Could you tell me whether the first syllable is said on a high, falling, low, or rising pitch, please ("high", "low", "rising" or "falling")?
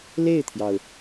falling